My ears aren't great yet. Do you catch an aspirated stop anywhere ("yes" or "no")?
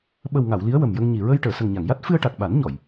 no